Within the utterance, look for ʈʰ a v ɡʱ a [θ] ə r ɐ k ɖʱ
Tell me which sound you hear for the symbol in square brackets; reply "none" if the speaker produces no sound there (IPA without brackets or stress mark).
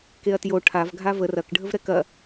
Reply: v